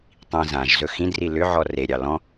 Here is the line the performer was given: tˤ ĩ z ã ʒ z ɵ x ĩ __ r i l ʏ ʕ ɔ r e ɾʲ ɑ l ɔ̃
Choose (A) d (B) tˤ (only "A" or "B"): A